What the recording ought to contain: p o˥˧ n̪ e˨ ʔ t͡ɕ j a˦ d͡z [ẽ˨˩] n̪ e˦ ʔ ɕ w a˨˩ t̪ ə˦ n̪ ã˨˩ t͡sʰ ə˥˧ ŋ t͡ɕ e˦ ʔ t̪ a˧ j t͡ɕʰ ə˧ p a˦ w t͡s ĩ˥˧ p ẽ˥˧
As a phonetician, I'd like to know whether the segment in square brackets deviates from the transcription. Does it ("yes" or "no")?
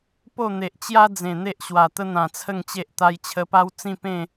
no